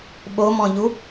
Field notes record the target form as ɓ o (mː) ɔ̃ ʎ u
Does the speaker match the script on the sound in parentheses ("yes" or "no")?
no